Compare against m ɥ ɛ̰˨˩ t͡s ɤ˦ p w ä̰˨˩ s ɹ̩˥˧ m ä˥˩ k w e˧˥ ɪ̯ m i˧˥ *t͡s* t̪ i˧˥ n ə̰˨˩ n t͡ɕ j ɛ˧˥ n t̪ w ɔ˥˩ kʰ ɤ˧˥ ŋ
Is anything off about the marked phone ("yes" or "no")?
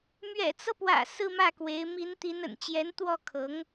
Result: yes